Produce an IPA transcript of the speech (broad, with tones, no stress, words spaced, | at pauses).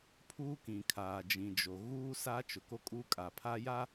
pʰuː˦kĩ˨kʰaː˨ d͡ʒĩ˨d͡ʒo˨ ɣuː˦ sa˦t͡ʃʊ˨ko˦ kʼuː˦kʼa˨pʰa˦ ja˦